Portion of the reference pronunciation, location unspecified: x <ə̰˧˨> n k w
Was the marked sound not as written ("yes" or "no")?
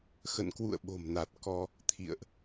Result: no